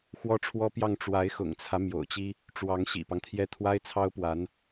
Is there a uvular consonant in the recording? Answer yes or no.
no